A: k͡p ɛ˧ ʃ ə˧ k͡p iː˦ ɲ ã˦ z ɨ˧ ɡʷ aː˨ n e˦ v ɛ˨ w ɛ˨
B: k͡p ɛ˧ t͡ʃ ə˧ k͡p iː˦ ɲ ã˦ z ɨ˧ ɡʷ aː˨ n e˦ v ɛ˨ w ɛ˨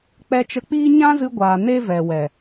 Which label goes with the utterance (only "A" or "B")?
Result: B